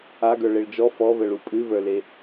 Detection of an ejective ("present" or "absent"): present